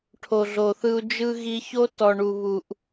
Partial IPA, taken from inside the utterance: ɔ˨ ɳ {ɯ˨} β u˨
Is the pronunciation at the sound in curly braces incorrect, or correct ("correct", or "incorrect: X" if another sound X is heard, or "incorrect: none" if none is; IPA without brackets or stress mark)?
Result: incorrect: u˨